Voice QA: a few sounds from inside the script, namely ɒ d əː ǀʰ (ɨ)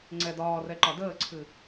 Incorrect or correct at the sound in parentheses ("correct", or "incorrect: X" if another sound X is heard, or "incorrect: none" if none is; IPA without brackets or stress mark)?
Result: correct